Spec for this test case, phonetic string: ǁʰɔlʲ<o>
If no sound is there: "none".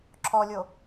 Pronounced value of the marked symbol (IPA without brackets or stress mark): o